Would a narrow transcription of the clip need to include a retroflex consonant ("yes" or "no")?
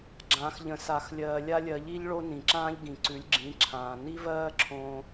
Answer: yes